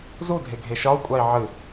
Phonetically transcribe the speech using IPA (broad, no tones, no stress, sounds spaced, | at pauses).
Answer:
z u dʱ e ɡʱ e ʃ ɒ u̯ kʷʼ a i̯ ʕ ɨ